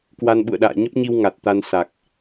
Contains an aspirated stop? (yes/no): no